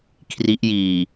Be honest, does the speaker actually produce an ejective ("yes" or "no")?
no